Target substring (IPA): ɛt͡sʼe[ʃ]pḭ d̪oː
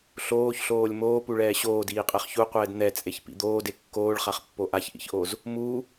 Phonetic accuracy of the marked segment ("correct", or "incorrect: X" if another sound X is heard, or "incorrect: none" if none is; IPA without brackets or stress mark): incorrect: ç